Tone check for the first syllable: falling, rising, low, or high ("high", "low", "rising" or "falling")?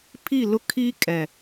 falling